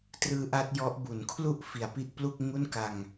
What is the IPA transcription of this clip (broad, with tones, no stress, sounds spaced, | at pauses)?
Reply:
t r ɯː˦˥ ʔ a˦˥ t̚ j ɔ˦˥ ʔ b u˩˦ n kʰ l u˥˩ ʔ f i˨˩ a̯ p i˥˩ ʔ p l u˥˩ k̚ ŋ u˥˩ n k a˧ ŋ